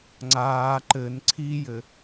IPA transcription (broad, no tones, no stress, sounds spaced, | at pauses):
ŋ͡ǀ aː ǃ ɘ n ǀʰ i j ɘ